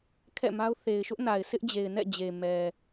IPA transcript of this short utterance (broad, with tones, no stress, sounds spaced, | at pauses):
kʰ ɛ̰˦˨ m a˦ ʊ̯ θ e˨ ɪ̯ ʃ ʊ˦ ʔ n a˨ ɪ̯ sʰ ɪ˦ ʔ d͡ʑ e˨ ɪ̯ n ɛ̰˦˨ d͡ʑ e˨ m ɛ˨